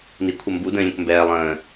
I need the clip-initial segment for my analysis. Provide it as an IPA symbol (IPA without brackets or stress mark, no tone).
n